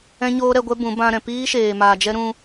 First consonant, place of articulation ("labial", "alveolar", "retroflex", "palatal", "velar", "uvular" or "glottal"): palatal